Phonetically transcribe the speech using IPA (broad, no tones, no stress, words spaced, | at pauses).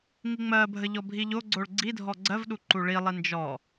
ŋiŋ͡mɜbʱə ʎɔbʱiʎoɡ͡ǀoɭ ɡ͡ǀidʱɔ ɡ͡ǀɜvɗu ǃuɭilˠi nd͡ʒɔ